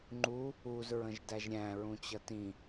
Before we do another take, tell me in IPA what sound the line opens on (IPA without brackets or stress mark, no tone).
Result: ŋ͡ǃ